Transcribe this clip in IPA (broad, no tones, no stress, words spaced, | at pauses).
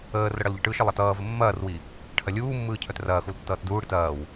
əːrə ɽɐlʎəʈɯʃə lˠɐtʌːvə mːɐːrwi | ʈʰɐlʲuːmːɯː cʰœtrɐːxul tːʌːtduːɽit ɐːw